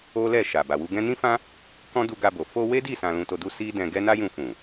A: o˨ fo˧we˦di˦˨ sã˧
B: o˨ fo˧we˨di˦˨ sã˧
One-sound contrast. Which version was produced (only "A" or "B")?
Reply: A